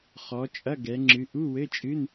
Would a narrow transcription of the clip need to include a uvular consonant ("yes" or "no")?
yes